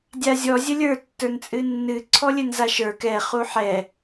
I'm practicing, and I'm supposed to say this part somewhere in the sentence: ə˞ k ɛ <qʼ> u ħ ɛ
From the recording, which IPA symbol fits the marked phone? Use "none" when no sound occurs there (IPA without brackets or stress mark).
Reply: χ